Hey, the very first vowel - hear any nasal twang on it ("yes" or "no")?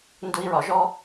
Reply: no